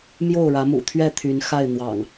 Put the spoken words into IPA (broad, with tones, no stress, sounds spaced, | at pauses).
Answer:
m j o˥˨ ʊ̯ ɻ ä˨˦ m ṵ˨˩ t̪ʰ ɥ ɛ˥˨ t̪ʰ y˨˦ n x a˥˨ ɪ̯ n̪ w ɑ̰˨˩ ŋ